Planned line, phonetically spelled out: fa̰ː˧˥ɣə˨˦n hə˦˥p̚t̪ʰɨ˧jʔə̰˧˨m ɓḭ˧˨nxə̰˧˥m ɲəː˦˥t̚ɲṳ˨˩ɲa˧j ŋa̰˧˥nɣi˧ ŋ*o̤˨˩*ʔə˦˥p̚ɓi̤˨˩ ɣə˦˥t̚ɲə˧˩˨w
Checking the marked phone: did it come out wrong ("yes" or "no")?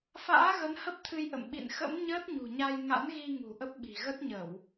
yes